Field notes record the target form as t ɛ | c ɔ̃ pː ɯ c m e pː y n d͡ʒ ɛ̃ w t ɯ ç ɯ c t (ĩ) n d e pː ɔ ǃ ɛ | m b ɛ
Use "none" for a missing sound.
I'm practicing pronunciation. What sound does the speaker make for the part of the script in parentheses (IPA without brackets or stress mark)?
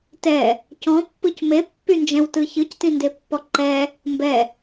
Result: ĩ